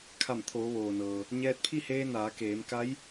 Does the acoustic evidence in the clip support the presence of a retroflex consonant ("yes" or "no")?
no